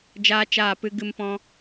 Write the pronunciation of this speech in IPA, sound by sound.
d͡ʒ aː˦ t͡ʃ aː˦˨ p ɨ˦ ɡ ɨ˦ m p ɔ̃˦

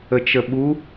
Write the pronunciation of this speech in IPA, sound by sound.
ə t͡ʃ ə ɓ u

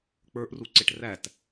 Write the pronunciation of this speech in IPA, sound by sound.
k͡p ə˞ ʔ r u ǀ ɪ ʈ r æ t

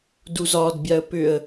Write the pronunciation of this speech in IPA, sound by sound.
d u z ɒ d bʲ a ə̯ p ʏ ə̯

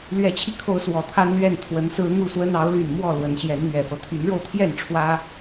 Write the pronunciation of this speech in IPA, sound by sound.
l ɥ ɛ˨˦ t͡ɕʰ i˧ kʰ o˨˦ ʊ̯ s w ɔ˨˩ t̪ʰ a˦ n l ɥ ɛ˥˨ n t̪ʰ w ə˨˦ n s ɹ̩˦ n̪ u˥˨ s w ə˦ n ɑ˨˦ ʊ̯ l y˨˩ n m w ɔ˥˨ l w ə˨˦ n ɕ j ɛ˨˦ n n̪ ɥ ɛ˨˩ f ɤ˦ t̪ʰ y˨˦ n ɻ o˧ ʊ̯ t̪ʰ j ɛ˥˨ n ʈ͡ʂʰ w ä˦

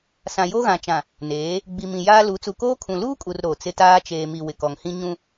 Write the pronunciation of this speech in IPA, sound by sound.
s ã˨ j o˦ ɣ ã˨ t͡ʃ ã˨ | n eː˨˦ | ɡ͡b i˨ m ĩ˨ j aː˦ l u˨˦ t͡s u˨ k oː˦ kʰ ũ˨ l uː˦ kʼ u˨ r ɾ o˨ t͡s ɪ˦ t aː˦ t͡ʃ eː˨ m i˨ w ɪ˨ k ɔ˨ ŋ h ĩ˦ ɲ ũ˦

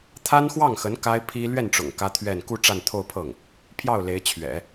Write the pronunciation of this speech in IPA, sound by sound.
t̪ʰ a˥ n x w ɑ˥˩ ŋ x ə˧˥ n k a˥ ɪ̯ pʰ i˥ l ɥ ɛ˥˩ n ʈ͡ʂ ʊ̰˨˩ ŋ k ä˥ t̪ʰ ɥ ɛ˥˧ n k u˥˧ ʈ͡ʂ a˥˧ n t̪ʰ o˥˧ ʊ̯ pʰ ɤ˥˩ ŋ | pʰ j ɑ˥˩ ʊ̯ l e˧˥ ɪ̯ t͡ɕʰ ɥ ɛ̰˨˩˦

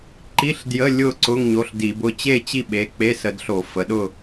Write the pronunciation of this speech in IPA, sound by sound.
ǃ i˧˥˧ ɬ d j ə˧˥˧ lʲ ʊ˥˨ ǀ ʊ˧˥˧ ŋ ɲ o˩˧˩ ɬ d i˧˩˧ b ʊ˧˥˧ t͡ɕ e˥˨ t͡ɕ i˥˨ ɓ e˩˧˩ k͡p e˧˥˧ s ə˧˩˧ d ɬ o˧˩˧ f ə˩˧˩ ɗ ʊ˥˨

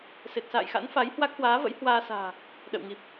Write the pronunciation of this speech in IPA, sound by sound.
s e˨˩ t̚ s a̰ː˧˨ j x a̰˧˥ n f a˨˦ j h w a˦˥ k̚ h w aː˨˦ v ə̰˧˥ j h w aː˧ s a̤ː˨˩ | ɗ ə̰˧˨ w ŋ i˨˩ p̚

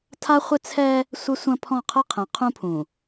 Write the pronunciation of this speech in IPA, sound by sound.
tʰ a˦ χʷ ɪ˦ t͡sʰ ɛː˦ | sʷ ɪ˦ sʷ ɐ̃˦ pʰ ɔ̃˦˨ qʰ əː˦ qʰ ɛ̃˨ qʰ ũ˦ pʰ ũ˨

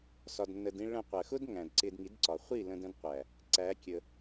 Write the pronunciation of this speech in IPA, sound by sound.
s ɒ˨ d nː ə˨ d ĩ˧ ɭ ə̃˧ qʷ ɜ˨ x ʊ˦ d ŋ æ̃˨ d ǀ ɪ˧ d ŋ i˨˦ d ǀ ɒ˨ χʷ i˦˨ l ə̃˧ d ə̃˧ d qʷ æ˨ | ǀ æ˨˦ kʲ ə˧

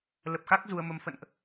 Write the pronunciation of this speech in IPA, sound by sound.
l ə˨˩ p̚ x a˦˥ k̚ z u˧ ə̯ m ə˧ m f ə̰˧˨ n ʔ

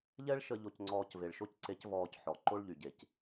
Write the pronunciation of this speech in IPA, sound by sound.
ʎ ɛ˥ ɭ ʃ ə˧ ʎ o˧ c ŋ͡ǀ ɔː˧ c v e˩ ɭ ʃ o˥ c ǀ e˧˥ c v ɔː˧ c ħ ɔ˩ ǃ o˥ ɭ ʎ y˩ ɟ e˩ c

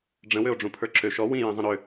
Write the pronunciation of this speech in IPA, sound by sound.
ɖ͡ʐ ə̃ w ø o̯ ɖ͡ʐ ũ pʰ ə˞ ǁ ø ʃ ɔ w ĩ j ĩ zˤ ə̃ ɾ ø

